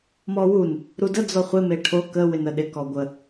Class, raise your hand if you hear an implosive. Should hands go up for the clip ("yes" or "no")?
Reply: yes